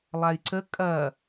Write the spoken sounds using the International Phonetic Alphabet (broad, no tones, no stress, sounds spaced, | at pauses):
lˠ a j ǀ ə kʼ ɐ